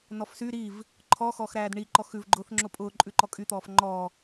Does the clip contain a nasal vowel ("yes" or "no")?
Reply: no